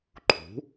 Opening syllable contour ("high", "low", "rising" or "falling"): rising